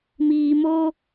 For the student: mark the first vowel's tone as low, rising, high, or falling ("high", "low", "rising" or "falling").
low